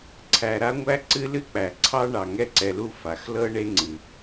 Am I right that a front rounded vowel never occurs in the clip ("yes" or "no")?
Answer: yes